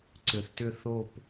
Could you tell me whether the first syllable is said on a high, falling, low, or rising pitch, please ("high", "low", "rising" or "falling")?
low